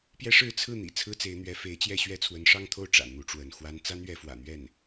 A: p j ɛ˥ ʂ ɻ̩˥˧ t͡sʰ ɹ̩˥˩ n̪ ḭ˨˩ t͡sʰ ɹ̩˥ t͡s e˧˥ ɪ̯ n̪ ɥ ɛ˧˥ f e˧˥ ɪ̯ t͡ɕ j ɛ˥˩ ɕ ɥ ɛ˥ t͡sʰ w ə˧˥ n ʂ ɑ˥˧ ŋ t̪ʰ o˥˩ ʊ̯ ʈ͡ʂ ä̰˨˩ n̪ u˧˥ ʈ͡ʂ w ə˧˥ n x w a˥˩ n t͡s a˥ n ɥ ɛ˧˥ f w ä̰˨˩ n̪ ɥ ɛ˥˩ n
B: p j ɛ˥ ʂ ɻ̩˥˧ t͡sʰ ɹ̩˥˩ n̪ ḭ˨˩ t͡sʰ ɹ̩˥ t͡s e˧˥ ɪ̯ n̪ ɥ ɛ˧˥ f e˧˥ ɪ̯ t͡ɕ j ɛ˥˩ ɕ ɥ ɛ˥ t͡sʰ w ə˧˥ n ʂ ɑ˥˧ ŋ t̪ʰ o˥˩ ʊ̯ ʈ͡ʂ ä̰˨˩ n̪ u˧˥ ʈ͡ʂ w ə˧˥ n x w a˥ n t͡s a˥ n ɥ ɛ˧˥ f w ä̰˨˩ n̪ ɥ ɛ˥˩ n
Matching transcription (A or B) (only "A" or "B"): B